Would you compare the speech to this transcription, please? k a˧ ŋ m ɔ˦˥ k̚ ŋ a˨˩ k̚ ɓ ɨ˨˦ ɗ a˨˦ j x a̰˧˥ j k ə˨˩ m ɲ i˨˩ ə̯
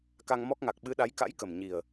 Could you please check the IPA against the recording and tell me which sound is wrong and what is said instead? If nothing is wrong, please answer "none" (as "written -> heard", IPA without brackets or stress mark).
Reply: x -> k